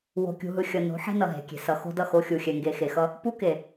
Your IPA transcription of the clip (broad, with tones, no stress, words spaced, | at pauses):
wo̤˨kʲṳ˨ɦɯ˨ xʲʌ˨no̤˨˦ ħe̤˦nʌ˨ɦe̤˨kʲe̤˨ sʌ˨ xo̤˦dʌ˦˨ xo˦xʲu˨ xʲɛ˨ŋɡe˨xe˨xʌ˦ | pu˦ke˨